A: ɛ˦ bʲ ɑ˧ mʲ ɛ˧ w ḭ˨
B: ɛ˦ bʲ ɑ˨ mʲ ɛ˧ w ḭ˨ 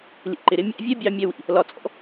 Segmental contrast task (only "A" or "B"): A